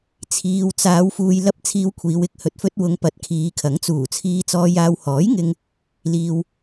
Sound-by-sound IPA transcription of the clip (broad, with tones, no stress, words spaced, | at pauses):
t͡sʰiː˨wt͡saː˨˧w fuː˨jlɐ˧p̚ t͡sʰiː˧wkʷʰiː˨˧w ɪ˨k̚ hɵ˨t̚fɵ˧t̚wʊ˨˧ŋ pɐ˨˥t̚kʰiː˨˧kʰɐ˨˥ŋt͡suː˨˩ t͡sʰiː˧t͡sɔː˧jaː˧w hɔː˨˥jŋɪ˧ŋ | liː˨w